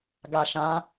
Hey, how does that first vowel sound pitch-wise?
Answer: low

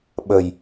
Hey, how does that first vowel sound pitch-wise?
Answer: low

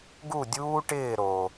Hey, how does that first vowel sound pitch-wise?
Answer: falling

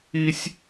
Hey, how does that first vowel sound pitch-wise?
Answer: high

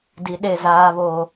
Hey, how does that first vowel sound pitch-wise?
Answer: low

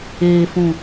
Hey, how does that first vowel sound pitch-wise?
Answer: low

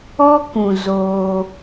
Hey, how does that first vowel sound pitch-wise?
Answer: high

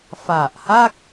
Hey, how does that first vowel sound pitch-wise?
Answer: low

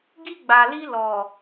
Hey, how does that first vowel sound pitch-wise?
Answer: high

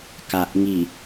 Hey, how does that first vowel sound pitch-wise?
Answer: low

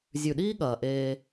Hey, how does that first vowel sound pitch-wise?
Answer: low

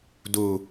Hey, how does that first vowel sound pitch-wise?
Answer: falling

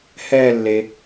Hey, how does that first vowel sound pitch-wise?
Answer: falling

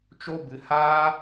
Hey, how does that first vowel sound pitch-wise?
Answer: high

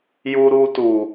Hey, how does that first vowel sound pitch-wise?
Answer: high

